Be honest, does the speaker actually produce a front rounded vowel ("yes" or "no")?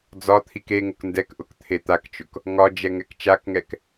no